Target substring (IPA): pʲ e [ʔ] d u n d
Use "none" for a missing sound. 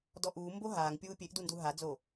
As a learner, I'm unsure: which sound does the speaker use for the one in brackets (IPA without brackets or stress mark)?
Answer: ʔ